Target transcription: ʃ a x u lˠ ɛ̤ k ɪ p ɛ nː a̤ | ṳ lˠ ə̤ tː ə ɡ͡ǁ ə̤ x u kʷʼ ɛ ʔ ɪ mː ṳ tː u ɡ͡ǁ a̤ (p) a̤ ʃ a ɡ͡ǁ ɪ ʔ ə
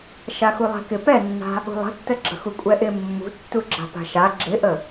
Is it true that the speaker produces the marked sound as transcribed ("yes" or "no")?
yes